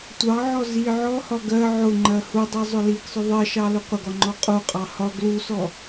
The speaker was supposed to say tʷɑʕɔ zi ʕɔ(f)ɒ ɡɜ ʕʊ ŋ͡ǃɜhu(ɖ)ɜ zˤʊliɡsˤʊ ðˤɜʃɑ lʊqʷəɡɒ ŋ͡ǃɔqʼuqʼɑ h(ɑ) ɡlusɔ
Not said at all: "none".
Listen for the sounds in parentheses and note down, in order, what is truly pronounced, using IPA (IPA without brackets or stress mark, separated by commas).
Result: h, dˤ, ɒ